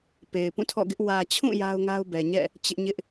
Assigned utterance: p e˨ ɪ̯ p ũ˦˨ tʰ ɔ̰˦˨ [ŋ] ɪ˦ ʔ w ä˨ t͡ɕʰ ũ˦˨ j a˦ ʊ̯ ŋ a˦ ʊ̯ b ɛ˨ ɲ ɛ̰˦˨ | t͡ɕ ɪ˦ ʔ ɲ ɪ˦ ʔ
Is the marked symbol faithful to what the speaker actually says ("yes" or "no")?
no